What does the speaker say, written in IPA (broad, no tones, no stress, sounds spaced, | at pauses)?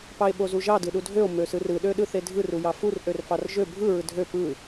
p ɑ e̯ ɓ o z u ʒ ɑ d ɯ ɗ u dʱ ø o̯ m ø s ɯ r ɯ ɗ ø ɗ ɯ θ e dʱ ɯ r u j ɑ f u r ʔ ø r f ɑ r ʒ ø bʱ ɯ ɹ ɯ dʱ ø p ɯ